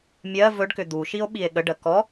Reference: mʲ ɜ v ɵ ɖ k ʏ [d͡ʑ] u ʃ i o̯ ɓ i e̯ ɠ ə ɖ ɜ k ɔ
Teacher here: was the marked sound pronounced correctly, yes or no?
no